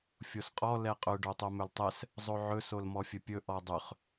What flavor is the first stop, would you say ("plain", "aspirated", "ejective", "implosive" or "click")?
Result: ejective